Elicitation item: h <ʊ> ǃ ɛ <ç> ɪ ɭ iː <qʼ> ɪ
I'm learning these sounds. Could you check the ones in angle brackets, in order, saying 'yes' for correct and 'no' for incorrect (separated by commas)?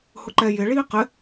yes, no, no